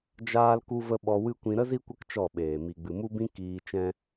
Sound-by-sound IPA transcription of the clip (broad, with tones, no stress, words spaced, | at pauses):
d͡ʒaː˦lku˦və˦ ɓɔ˧wɨ˦kʷĩ˧ ɾə˦ zi˦kʷə˦k t͡ʃɔ˦˨ɓeː˨ mi˨ɡ͡bɨ˨mu˦bĩ˦ kiː˧t͡ʃɛ̃˦